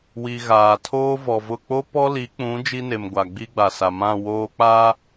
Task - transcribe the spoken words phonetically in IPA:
w i˨ ɣ aː˨ tʰ oː˦ v ɔ˨ v ʊ˦˨ k͡p o˦ p ɔ˦ l i˨˦ k͡p ũ˨˦ d͡ʒ i˦ n e˨ m ɡʷ a˨ ɡ͡b i˦ ɡ͡b a˨ s a˨ m ã˦˨ w oː˦ k͡p a˦

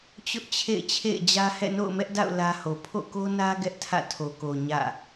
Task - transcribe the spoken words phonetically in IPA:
t͡ɕ ʊ˦ ʔ t͡ɕʰ ḛ˦˨ ɪ̯ t͡ɕʰ ḛ˦˨ ɪ̯ d͡ʑ ä˦ h ɛ̰˦˨ n o̰˦˨ ʊ̯ m ɛ˦ ʔ d a̰˦˨ ʊ̯ l ä˦ h o˨ pʰ o̰˦˨ k o˦ n ä˦ ɡ ɛ˦ ʔ tʰ ä̰˦˨ tʰ o˨ k o˨ ɲ ä̰˦˨

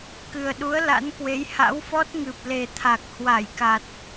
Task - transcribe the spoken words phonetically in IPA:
k ɨ˨˩ ə̯ ɗ u˨˦ ə̯ l a̰˧˥ n k w e˨˦ j h a̰˧˥ w f ɔ˦˥ t̚ ŋ ɨ˨˩ p̚ l e˨˩ t̪ʰ a˨˩ k̚ h w a˧˩ j k a˨˩ t̚

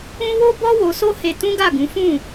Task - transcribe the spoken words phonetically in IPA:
ũ˦ w o˦ b ɔ˦ w o˧ s o˦ h e˧ t ũ˦ ɡ a˦˨ ɡ ũ˨˦ f ũ˦˨

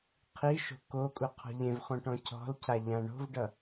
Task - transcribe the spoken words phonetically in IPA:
qʰ i ʃ o̤ k o kʼ u qʰ ɔ̤ ʎ ẽ v χ õ ʈ ɔ̃ cʰ ɔ̤ l cʰ a ʎ ã ɳ o̤ v ɖ ʌ

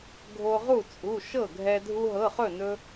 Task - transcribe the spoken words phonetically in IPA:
ɡʱ o˧ ʁ u˥˩ t͡sʼ u˩˧˩ ʃ ɤ˥˩ ɡʱ ɛ˧ dʱ u˧ ɦ ɤ˩˧˩ χ ɵ˥˩ n ɵ˧

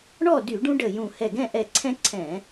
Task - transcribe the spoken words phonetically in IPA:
ɳ ɔ˥˨ d y˧˩˧ ɖ ũ˦ ɖ ə˧˩ j ũ˧˩ h ɛ˧˩ ɡ ɛ̃˥˨ ʔ ɛ˧˩ ǀʰ ɛ̃˦ ǀʰ ɛ̃˧˩˧

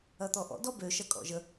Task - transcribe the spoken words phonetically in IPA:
ɐ t̪ ɔ ʔ ɔ̰ d ɔ b ø ʃ ɐ kʼ ɔ̰ ʒ ə

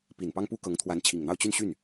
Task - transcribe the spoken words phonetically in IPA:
p i˨˩ n p ɑ˥ ŋ p u˥ k ɤ˧˥ ŋ t̪ʰ w a˧˥ n t͡ɕʰ i˨˩ ŋ n̪ ɑ˥˧ ʊ̯ t͡ɕ y˥˧ n ɕ y˥˩ n

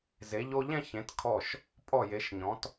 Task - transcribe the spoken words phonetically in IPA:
z e˩˧ ʎ o˧ ʎ ɛ̃˥˧ ç ẽ˩˧ t kʰ ɔ˧˩ ʃ | pʼ ɔ˧˩ j e˩˧ ʃ ɲ ɔ̃˩˧ t

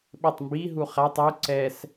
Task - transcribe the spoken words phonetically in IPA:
ɓ ɪ tˤ m b i ɦ u χ a tˤ u ǀ ɛ s

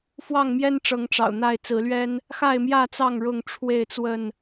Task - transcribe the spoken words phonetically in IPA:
f w ɑ˥˨ ŋ m j ɛ˦ n ʈ͡ʂ ɤ˨˦ ŋ ʈ͡ʂ ɑ̰˨˩ ʊ̯ n̪ a˥˨ ɪ̯ t͡s ɹ̩˨˦ l ɥ ɛ˦ n | x a˥˨ ɪ̯ m j ä˥˨ t͡s ɑ˥˨ ŋ ɻ ʊ˥˨ ŋ ʈ͡ʂʰ w e˥˨ ɪ̯ t͡s w ə˥˨ n

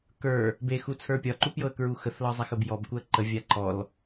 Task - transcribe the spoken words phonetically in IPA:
k ə˞ | b e x u t͡sʰ ə˞ pʲ ɒ ǃ u p j ɤ ə̯ k ɹ u x ə θ l ɒ zˤ a x ə b j ɔ b k u ə̯ ǃ ə vʲ a ǃ ɔ l

